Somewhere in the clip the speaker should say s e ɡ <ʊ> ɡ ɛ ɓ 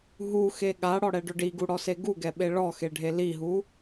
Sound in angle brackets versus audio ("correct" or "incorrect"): incorrect